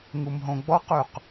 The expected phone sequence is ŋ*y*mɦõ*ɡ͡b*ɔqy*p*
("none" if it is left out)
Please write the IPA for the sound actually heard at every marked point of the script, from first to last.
u, ɡ͡b, q

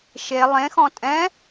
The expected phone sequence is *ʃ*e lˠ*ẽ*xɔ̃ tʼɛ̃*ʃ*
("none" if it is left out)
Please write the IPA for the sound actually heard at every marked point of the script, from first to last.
ʃ, ẽ, none

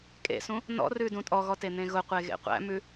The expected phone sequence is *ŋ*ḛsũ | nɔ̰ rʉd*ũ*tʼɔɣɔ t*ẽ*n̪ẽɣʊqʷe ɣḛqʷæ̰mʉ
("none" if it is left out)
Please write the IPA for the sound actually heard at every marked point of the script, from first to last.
kʼ, ũ, e

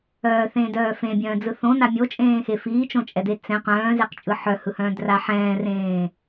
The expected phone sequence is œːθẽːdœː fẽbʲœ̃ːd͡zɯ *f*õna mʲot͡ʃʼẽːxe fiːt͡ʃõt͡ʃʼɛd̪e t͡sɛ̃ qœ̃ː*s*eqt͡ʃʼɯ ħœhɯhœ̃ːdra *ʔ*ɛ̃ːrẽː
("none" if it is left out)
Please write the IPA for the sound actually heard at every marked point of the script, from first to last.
θ, z, ħ

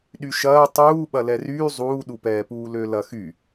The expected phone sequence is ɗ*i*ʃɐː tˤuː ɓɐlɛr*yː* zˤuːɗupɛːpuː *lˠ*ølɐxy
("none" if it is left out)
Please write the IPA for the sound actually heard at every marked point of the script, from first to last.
y, yː, l

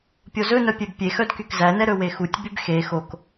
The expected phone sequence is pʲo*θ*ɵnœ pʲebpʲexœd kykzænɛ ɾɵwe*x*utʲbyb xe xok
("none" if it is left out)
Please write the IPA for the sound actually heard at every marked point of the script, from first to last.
z, x

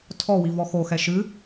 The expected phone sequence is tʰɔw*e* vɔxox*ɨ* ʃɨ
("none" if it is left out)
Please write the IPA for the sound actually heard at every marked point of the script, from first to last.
i, ɛ

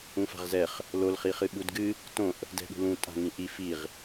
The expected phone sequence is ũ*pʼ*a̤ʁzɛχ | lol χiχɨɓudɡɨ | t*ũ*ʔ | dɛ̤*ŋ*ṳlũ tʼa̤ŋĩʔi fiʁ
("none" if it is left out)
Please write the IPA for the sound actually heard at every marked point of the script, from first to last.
f, õ, ɠ

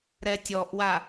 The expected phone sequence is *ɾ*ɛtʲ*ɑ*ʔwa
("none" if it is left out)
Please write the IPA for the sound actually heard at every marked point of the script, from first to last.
ɾ, ɔ

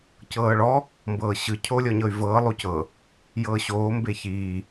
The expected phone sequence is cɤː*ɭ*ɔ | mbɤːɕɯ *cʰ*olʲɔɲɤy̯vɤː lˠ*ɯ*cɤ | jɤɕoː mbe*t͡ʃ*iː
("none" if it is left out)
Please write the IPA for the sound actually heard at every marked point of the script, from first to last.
ɭ, cʰ, u, ç

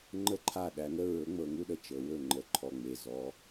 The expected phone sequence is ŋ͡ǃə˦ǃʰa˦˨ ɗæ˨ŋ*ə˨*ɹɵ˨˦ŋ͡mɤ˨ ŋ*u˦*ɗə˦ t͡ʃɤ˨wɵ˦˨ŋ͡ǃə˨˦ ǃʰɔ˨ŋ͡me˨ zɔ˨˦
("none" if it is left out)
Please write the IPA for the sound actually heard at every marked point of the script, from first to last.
ə˦, u˦

